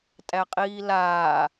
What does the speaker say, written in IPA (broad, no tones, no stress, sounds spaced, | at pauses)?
tʼ æ qʼ iː l aː